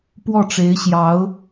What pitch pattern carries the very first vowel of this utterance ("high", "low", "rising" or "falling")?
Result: falling